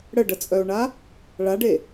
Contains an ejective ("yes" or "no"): yes